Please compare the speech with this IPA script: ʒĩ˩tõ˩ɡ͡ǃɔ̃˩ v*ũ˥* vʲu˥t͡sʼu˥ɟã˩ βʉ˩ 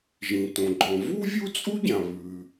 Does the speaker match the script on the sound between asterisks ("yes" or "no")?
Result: no